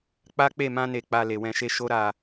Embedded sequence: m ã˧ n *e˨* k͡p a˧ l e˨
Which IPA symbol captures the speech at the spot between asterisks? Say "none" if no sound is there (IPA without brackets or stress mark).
e˨